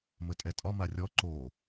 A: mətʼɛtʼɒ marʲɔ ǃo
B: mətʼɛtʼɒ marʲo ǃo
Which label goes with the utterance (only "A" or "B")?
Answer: A